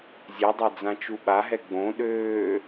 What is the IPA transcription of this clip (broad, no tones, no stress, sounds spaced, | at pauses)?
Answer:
zʲ ɛ dˤ a d͡z ã t͡ʃ u ɓ a ɦ ɛ ɡ͡b õ ɗ øː